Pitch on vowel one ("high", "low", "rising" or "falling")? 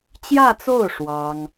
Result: falling